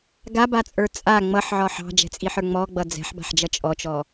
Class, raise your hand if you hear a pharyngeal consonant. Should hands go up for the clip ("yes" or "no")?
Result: yes